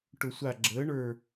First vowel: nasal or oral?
oral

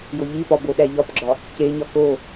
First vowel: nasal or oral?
oral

